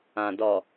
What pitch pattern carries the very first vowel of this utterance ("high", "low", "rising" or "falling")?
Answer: low